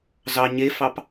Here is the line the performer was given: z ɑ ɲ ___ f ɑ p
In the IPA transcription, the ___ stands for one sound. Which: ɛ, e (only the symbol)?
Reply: e